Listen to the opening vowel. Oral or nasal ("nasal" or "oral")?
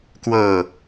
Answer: oral